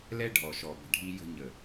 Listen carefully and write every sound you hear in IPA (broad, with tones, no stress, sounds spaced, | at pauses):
l ɛ˦ ɖʱ ɔ˨ ʃ ɔ˨ b ə̤˨ ɖʱ i˧ j ə̤˧ ɲ ə˨